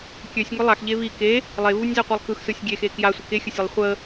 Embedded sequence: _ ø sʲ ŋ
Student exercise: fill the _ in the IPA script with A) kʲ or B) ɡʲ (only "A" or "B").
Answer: A